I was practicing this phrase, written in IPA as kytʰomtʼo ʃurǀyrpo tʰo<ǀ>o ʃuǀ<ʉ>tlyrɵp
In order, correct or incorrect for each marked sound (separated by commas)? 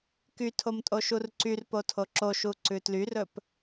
incorrect, correct